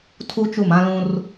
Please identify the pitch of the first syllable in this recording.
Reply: high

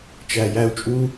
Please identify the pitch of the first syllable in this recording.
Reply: low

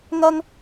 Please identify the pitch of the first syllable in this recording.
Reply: high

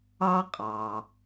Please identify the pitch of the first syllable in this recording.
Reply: high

